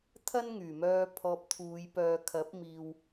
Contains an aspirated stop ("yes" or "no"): yes